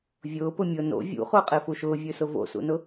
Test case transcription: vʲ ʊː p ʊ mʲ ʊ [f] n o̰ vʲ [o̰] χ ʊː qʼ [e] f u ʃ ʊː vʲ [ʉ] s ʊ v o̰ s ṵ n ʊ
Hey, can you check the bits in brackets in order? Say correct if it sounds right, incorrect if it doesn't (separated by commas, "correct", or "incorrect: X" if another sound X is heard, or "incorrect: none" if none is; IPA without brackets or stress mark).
incorrect: none, incorrect: ṵ, correct, correct